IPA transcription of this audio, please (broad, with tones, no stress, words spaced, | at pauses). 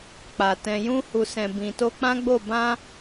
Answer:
k͡pa˨ tɛ̃˨jũ˧hu˨sɛ̃˨ bĩ˨to˧k͡pã˦ɡ͡bo˦˨ bã˧